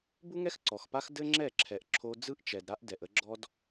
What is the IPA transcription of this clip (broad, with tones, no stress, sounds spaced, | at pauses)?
b u˦ ŋ ɛ˦ x ǀ ɔ˨ x p a˦ x d ɘ˦ ŋ͡ǁ ɛ˦˨ ǁʰ ɛ˨ ʔ ǁʰ o˦ d͡z ɯ˦ ʔ t͡ʃ ɛ˨ d ɾ a˦ ʔ d ɛ˨ ʔ ə˦ ɡ͡ǁ ɔ˦ d